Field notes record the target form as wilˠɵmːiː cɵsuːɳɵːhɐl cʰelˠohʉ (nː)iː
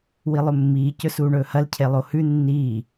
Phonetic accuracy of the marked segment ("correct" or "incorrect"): correct